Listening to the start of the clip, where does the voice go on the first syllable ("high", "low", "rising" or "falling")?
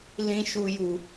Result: high